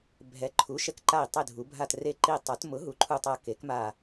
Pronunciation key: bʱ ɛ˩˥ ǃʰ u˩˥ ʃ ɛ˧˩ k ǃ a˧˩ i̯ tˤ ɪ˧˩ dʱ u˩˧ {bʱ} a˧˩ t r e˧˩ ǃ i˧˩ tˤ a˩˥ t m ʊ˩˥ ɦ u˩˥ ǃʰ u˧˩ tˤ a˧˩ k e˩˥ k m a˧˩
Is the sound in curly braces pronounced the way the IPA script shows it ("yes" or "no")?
yes